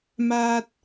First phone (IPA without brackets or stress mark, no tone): m